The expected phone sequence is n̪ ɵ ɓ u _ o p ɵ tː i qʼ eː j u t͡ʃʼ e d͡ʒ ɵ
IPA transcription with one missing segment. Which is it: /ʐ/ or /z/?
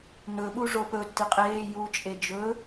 ʐ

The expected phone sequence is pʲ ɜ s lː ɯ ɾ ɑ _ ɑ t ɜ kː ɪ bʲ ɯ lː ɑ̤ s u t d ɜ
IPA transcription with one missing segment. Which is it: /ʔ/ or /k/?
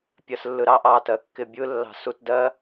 ʔ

